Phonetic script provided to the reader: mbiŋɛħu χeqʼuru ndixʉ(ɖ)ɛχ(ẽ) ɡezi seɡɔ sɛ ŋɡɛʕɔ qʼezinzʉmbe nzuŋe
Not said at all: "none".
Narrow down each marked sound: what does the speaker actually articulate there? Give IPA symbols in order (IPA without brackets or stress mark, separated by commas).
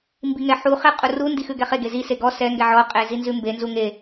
ɡ, e